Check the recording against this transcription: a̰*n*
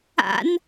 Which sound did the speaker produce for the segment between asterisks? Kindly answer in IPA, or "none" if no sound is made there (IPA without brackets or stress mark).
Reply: n